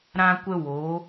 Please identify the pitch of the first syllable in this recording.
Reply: high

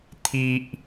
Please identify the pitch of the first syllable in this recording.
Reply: low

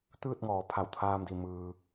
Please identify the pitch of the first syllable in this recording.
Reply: falling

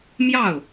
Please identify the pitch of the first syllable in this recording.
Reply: falling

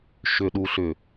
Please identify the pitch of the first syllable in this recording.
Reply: low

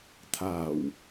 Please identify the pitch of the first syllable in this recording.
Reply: low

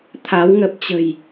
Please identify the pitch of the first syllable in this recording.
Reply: rising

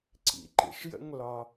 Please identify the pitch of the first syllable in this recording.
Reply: low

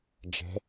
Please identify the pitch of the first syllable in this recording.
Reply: rising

